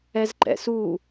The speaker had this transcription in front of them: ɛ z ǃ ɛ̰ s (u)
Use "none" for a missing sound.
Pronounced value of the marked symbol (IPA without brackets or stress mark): u